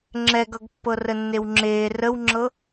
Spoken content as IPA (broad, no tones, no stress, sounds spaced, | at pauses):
ŋ͡ǁ ɛ ɡ ʌ ɡ pː ɤ r ə nː e w ŋ͡ǁ eː r ə w ŋ͡ǁ ɤ